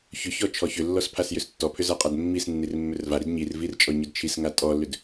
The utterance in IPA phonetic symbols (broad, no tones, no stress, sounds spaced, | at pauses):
ç ʏ ç ɔ t͡ʃʰ ɔ ç ʏ lː ɔ s pʰ a s j ʏ s tː ɔ pʰ ʏ z a qʼ a d mː i s nː i r mː ʏ r v a ɾ i d ɲ i r v i r t͡ʃʼ ɔ ɲ ʏ d t͡ʃʰ i s ŋ a tʼ ɔ lː ʏ d